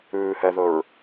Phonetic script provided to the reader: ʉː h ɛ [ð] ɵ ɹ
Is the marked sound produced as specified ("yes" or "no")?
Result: yes